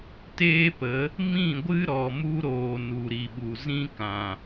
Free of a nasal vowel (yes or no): no